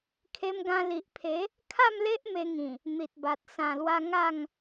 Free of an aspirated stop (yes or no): no